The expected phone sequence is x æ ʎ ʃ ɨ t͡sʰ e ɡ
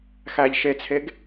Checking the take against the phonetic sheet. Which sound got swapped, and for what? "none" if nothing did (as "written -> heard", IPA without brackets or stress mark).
ɨ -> e